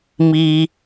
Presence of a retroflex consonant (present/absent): absent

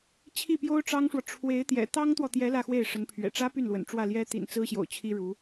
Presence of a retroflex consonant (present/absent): present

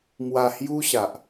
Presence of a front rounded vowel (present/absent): absent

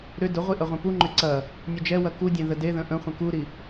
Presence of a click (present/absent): present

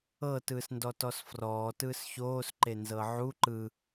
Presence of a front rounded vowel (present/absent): absent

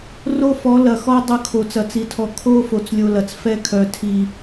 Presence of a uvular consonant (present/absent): absent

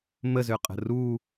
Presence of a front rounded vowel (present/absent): present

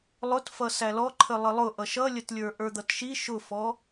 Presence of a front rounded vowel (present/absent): absent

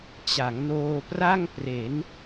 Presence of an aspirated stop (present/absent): absent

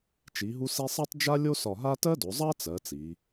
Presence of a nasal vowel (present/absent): absent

